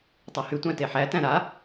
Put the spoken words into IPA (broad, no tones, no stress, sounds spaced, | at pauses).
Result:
tˤ æ h y tʷ æ̃ t e ħ æ t æ̃ ɾ a